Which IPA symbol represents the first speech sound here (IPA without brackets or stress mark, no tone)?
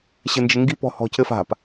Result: ɕ